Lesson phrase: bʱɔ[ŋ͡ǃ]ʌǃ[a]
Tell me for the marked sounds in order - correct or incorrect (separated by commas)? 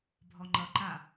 correct, correct